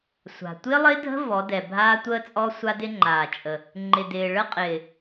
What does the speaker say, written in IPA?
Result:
sʷ a̤˨ tʷ ɪː˦ lˠ ɪː˦ dʱ ə̤˦ v ɔ˨˦ d ɛ˨ bʱ aː˦ tʷ əː˦ t͡sʼ ɔ˦ sʷ a˦ d ɪ˦ ŋ͡ǃ aː˨ t͡ʃʼ ə˨ | ŋ͡ǃ ɪ˨ d ɪː˨ ɭ ə˦ qʼ ɪː˨

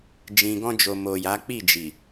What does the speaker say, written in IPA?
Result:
d͡ʒ ĩ˨ ɡ ɔ̃˧ d͡ʒ o˨ m o˨ j a˨˦ k͡p i˦˨ d͡ʒ i˨

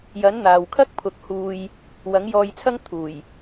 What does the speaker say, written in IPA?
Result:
j ɐ˨˥ n n̪ aː˨ w kʰ ɐ˥ k̚ pʰ ʊ˨ k̚ h uː˧ j | w ɐ˨˥ ŋ j ɔː˧ j t͡sʰ ɐ˥ ŋ t̪ʰ uː˨˩ j

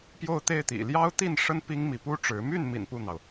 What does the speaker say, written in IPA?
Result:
p j o˥˧ ʊ̯ t̪ e˥˩ ɪ̯ t̪ ḭ˨˩ l j ɑ˥ ʊ̯ t̪ i˥˩ n ʂ ə˥ n p i˥ ŋ m i˧˥ p u˥ ʈ͡ʂ ɻ̩˧˥ m y˥˩ n m ḭ˨˩ n p u˥˩ n̪ ɑ˩ ʊ̯

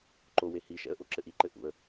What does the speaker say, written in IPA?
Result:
ǃ o w e h i ʃ ɛ̰ ə̯ ʔ o ǁ ɘ ʔ i ǃ ɘ ʔ ṵ ə̯

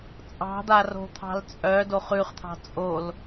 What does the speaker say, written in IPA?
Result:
t͡sʼ ɑ̤ d̪ a r o̤ t̪ʰ ɑ̤ l t͡sʼ œ d o χ ʉ χ t̪ʰ ɑ̤ t͡sʼ o l

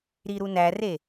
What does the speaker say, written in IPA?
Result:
ɾ i ɾ u n æ r e

